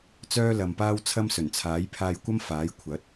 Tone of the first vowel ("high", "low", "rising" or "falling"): high